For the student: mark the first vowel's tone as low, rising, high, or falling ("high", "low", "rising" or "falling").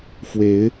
rising